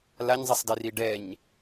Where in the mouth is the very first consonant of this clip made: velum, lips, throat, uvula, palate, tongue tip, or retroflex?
tongue tip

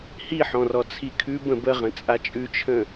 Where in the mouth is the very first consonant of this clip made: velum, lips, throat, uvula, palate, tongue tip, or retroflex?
throat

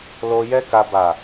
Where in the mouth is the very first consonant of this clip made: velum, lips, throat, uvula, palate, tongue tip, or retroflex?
tongue tip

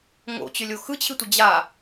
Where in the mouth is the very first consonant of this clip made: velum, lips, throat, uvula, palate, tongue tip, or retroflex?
velum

